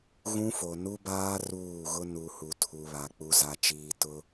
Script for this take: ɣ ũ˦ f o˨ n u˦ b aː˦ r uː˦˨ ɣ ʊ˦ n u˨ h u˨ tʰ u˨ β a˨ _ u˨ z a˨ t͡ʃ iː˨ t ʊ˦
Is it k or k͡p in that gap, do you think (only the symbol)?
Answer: k͡p